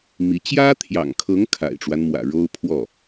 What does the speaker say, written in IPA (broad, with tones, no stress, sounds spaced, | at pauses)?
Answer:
m i˧˥ t͡ɕ j ä˥ t̪ʰ j ɑ̰˨˩ ŋ kʰ ɤ˧˥ ŋ kʰ a̰˨˩ ɪ̯ ʈ͡ʂ w a˦ n m w ä̰˨˩ ɻ o˥ ʊ̯ pʰ w ɔ˥˩